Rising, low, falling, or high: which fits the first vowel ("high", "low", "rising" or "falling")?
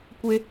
high